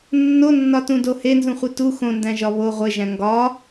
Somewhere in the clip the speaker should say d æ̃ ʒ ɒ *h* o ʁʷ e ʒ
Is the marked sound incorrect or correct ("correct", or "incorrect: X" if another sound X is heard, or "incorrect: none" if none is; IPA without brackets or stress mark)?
incorrect: β